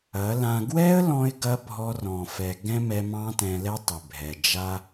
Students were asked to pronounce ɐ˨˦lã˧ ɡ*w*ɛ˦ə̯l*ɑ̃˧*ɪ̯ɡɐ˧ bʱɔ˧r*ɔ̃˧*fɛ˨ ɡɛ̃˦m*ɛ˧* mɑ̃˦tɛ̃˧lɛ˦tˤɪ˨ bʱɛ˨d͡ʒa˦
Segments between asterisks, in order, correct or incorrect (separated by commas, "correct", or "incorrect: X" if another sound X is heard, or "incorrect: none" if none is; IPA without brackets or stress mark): correct, incorrect: ɔ̃˧, incorrect: ɔ̃˨, correct